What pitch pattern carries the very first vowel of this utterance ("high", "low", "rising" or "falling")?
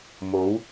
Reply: rising